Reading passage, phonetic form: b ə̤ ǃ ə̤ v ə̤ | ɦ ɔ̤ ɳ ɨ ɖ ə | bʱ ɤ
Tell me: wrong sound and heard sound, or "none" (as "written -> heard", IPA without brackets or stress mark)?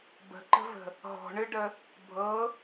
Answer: none